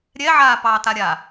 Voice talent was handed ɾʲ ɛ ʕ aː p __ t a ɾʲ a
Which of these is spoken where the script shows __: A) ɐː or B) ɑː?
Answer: B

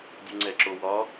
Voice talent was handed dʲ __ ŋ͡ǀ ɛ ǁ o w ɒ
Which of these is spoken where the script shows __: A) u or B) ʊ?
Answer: A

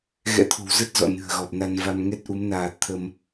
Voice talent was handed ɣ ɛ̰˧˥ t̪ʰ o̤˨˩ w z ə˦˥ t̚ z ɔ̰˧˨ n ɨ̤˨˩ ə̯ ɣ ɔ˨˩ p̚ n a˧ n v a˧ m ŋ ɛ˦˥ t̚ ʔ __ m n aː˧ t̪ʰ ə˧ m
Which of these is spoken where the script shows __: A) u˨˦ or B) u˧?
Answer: A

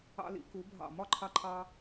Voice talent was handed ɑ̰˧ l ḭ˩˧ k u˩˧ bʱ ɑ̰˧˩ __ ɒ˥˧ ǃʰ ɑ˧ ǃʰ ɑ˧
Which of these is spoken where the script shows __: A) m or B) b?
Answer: A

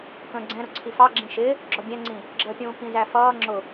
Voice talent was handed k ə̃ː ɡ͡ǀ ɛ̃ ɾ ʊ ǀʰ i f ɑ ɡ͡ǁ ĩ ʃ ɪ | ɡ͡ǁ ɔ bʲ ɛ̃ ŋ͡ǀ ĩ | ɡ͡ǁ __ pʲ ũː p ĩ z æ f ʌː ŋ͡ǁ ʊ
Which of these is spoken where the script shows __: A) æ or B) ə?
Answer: B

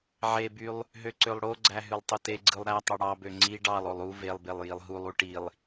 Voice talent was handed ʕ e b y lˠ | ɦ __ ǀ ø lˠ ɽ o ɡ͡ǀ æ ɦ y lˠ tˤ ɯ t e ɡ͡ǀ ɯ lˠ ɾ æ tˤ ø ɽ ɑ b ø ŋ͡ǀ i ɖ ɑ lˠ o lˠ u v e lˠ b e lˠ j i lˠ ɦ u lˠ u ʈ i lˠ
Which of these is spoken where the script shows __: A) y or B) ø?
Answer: B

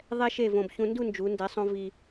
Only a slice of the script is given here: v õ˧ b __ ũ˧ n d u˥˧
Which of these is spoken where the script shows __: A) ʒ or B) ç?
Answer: B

